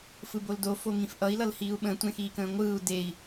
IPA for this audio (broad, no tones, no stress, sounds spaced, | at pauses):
f ɯ b o l d o f o ŋ ĩ f ʔ ʌ i̯ l ʌ l h iː u̯ ɓ ə̃ tʷ ẽ x iː k ə̃ː ŋʷ ɯː u̯ d e i̯